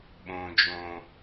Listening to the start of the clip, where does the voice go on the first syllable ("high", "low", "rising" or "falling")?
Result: low